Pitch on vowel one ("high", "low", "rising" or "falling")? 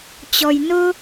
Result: low